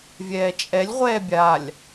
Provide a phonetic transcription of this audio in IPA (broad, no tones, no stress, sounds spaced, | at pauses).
vʲ ɛː t͡ʃʼ ɛ lʲ ʁʷ ɛː bʲ a lʲ